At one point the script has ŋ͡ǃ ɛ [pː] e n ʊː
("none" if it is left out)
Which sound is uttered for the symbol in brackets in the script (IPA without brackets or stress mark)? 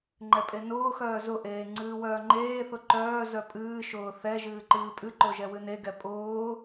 pʼ